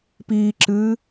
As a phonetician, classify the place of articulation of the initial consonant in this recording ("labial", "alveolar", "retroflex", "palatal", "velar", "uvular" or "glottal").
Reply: labial